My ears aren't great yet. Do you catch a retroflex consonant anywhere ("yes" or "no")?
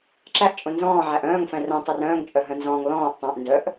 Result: no